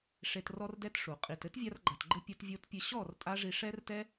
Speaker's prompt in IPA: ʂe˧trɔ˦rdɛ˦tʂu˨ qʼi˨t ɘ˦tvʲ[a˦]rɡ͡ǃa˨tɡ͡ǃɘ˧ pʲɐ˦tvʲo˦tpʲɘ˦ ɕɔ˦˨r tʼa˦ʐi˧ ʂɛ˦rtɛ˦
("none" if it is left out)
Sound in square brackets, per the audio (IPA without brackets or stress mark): a˧